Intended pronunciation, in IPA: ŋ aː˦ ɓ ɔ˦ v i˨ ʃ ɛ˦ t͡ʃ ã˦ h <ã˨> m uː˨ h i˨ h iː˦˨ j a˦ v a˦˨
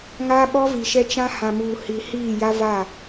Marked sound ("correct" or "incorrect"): correct